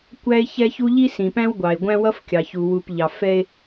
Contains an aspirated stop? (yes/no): no